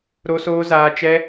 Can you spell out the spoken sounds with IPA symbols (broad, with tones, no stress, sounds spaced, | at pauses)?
ɾ o˦ s oː˦ z aː˦ t͡ʃ ɛ˦